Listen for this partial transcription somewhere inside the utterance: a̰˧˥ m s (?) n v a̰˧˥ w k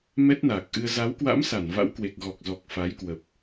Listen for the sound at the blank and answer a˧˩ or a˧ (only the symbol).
a˧˩